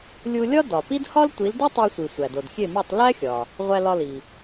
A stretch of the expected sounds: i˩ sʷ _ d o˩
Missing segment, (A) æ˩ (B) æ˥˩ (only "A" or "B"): A